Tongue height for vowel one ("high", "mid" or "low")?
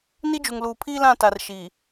high